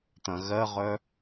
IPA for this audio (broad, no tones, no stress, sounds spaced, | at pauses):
t̪ ɐ̃ ɣ ɜ ʁ œ